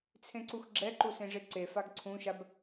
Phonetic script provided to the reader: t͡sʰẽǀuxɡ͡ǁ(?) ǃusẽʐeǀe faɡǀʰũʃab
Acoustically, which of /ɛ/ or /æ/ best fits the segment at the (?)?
ɛ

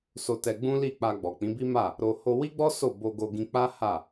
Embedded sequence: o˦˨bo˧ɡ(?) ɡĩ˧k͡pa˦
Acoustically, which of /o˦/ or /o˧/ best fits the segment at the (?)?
o˧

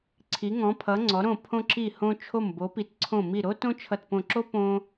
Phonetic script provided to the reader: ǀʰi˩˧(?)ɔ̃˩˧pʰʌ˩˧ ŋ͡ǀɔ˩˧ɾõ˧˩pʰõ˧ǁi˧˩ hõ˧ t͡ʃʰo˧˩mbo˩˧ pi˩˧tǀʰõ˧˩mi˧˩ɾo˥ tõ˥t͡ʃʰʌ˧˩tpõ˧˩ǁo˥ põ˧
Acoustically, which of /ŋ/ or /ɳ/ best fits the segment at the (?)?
ŋ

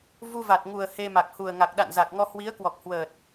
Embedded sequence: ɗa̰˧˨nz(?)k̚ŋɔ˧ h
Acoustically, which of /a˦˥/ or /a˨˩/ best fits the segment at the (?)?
a˨˩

